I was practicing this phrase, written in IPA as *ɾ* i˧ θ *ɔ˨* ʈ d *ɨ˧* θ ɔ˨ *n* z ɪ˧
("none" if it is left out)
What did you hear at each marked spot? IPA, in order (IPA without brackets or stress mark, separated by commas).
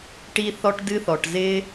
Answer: ʈ, ɔ˧, ɨ˧, ʈ